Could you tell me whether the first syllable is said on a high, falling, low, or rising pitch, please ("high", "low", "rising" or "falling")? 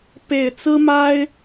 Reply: low